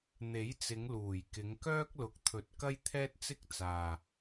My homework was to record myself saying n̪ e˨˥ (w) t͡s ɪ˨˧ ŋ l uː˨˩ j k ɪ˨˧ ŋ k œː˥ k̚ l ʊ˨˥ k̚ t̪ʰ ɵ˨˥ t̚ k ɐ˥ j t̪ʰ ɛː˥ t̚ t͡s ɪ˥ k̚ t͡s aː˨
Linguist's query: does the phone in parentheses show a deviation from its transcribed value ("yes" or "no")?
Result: yes